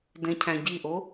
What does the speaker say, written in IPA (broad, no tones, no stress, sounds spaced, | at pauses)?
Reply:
d ẽ cʰ æ̃ ɟ i ʔ o